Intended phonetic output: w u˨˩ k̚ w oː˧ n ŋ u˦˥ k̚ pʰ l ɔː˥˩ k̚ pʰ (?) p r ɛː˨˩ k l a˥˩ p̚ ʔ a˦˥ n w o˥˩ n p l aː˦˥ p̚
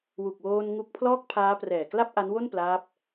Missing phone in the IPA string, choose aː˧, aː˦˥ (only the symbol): aː˦˥